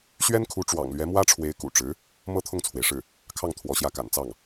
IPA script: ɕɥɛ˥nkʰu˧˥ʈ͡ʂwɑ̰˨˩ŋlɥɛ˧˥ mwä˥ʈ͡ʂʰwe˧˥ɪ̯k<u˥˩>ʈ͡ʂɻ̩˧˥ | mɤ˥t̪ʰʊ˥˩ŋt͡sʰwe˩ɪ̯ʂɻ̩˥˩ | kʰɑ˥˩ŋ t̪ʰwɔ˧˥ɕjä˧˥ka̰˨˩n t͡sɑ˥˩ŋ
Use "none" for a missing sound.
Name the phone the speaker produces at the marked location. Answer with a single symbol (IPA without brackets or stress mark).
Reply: ṵ˨˩